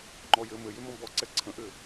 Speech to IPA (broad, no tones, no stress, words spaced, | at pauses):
ŋ͡ǃɔjɘ mɘjʏmɔ̃ bɔ ǀɛǀʰə̃ʔʏ